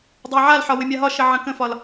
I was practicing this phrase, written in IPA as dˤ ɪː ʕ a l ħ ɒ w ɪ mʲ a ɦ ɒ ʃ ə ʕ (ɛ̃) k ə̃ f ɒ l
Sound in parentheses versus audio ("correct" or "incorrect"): incorrect